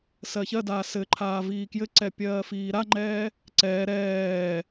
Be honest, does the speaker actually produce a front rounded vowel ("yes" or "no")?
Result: no